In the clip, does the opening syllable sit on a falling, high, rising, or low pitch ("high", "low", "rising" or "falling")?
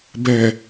low